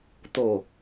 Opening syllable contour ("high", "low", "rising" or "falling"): low